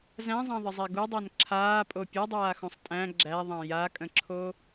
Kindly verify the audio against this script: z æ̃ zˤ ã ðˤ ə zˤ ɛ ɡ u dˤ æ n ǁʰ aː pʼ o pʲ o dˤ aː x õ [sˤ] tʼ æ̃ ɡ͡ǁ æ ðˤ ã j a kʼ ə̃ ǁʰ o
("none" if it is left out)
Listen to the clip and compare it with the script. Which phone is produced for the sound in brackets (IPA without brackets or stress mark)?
sˤ